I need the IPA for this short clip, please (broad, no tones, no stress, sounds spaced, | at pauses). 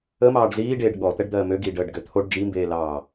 ə m ɑː ɖ z iː ɖ eː ɖ ɠ ɔ t̪ ɛ ɖ d̪ ɜː m ø ɡ iː ɖ əː ɖ ɡ ø t̪ʰ o ɖ d͡ʒ i m b eː l ɑː